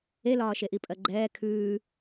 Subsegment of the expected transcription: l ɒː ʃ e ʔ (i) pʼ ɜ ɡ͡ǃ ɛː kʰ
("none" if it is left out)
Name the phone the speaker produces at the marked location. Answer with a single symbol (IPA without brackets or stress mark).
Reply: i